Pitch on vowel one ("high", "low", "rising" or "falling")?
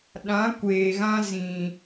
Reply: rising